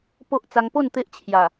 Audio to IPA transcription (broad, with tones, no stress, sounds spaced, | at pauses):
p o˦ ʔ t͡s a˧ ŋ p o˥˧ n t̪ e˦ ʔ t͡ɕʰ j a˨˩